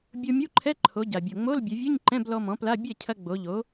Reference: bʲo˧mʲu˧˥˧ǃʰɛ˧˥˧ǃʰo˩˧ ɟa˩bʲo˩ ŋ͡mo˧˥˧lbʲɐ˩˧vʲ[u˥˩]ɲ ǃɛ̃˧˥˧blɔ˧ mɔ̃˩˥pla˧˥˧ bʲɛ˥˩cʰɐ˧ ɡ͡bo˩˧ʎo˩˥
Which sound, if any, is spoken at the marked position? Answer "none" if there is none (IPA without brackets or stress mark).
u˧˥˧